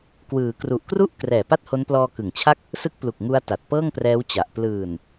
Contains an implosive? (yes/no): no